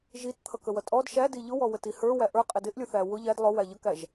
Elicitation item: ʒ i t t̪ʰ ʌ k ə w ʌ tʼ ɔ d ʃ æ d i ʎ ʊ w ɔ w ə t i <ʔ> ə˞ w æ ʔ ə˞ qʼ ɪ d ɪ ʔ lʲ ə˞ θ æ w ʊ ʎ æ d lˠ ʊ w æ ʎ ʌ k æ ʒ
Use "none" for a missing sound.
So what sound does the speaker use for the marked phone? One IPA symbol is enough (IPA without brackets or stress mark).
h